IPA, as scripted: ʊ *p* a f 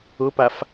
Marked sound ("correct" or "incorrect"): correct